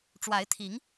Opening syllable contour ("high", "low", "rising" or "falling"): rising